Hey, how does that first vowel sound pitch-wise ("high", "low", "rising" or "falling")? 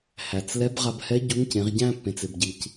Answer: low